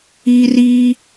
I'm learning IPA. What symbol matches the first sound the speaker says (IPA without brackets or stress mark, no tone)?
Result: i